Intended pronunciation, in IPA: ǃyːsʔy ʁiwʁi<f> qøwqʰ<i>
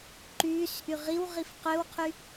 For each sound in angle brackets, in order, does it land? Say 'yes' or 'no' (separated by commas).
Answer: yes, no